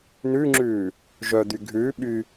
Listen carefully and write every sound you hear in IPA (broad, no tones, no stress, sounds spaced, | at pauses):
n ʉ ŋ͡ǁ ʉː | ʒ œ d̪ y ɡʱ ʉː ɓ y